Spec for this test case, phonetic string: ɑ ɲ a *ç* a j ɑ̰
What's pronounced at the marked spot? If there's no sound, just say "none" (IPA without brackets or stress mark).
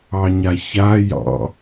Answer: ç